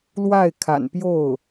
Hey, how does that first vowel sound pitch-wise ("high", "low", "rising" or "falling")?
falling